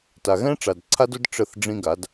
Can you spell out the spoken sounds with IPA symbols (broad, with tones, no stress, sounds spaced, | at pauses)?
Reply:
t a˨ ɣ ɛ̃˦ ʈ͡ʂ a˨ d ǀʰ a˦ d ʊ˦ d ʈ͡ʂ ə˦˨ θ ɖ͡ʐ ĩ˦ ɡ a˨˦ d